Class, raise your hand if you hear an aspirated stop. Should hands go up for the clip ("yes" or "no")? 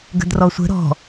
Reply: no